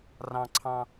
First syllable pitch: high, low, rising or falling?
low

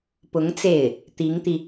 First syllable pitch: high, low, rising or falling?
rising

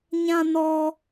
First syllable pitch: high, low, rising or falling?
high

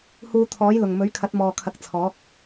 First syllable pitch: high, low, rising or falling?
low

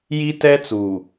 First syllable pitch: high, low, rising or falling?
high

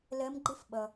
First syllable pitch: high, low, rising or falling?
rising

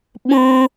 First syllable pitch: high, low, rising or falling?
high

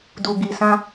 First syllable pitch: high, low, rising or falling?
low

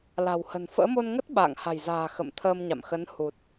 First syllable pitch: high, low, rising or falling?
low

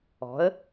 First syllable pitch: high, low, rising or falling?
rising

